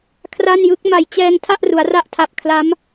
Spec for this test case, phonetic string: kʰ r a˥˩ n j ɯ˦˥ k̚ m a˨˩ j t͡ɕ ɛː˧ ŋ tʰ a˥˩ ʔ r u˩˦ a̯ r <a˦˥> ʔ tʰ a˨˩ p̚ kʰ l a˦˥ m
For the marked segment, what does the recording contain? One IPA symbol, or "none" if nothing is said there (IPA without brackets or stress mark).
a˦˥